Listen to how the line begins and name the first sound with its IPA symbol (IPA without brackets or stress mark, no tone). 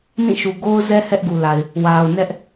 n